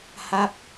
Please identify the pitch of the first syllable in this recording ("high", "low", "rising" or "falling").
falling